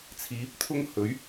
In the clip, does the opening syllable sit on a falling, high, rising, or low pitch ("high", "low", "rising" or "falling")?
rising